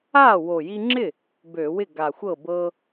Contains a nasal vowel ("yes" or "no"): no